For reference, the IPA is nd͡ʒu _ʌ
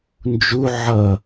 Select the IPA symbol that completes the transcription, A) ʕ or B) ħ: A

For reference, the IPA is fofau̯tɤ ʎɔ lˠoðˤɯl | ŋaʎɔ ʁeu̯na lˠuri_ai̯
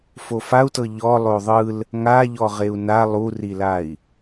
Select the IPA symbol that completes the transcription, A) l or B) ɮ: A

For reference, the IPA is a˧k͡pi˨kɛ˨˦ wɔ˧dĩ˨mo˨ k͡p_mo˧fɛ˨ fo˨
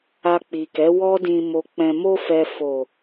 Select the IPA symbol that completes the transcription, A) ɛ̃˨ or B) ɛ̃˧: A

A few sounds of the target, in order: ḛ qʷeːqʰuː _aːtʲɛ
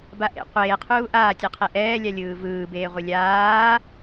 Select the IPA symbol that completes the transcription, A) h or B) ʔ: B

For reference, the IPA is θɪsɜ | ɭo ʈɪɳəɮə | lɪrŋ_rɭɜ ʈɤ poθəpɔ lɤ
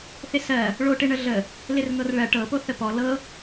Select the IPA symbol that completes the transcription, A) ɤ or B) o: A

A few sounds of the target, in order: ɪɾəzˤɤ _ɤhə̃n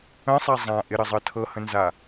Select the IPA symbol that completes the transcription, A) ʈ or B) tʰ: B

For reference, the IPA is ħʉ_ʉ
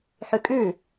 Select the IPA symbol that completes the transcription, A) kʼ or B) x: A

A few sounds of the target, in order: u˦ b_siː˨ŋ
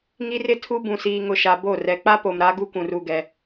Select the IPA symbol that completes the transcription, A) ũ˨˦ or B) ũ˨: B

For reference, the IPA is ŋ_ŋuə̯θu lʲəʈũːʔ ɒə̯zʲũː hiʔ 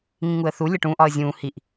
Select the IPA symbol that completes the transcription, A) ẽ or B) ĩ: B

